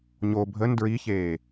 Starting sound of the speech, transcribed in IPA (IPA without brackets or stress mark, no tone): ɲ